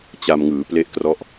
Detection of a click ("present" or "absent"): absent